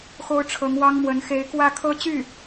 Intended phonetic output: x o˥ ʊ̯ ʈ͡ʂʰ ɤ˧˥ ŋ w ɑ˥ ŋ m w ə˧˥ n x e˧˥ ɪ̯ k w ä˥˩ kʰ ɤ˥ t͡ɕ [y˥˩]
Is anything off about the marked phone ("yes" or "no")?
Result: no